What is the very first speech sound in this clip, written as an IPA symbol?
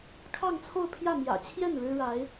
kʰ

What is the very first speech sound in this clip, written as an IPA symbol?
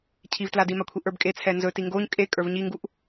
cʰ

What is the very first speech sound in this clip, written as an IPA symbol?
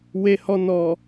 w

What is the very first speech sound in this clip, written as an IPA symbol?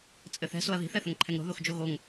t͡sʼ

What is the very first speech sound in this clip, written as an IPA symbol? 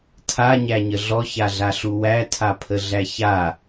tʰ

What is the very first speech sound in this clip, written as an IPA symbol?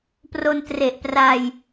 p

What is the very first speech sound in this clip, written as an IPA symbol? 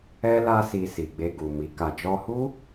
ɛ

